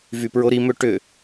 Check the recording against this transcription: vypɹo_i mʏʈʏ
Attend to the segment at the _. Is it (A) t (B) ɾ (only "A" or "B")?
B